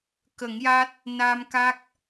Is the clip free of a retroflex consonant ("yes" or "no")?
yes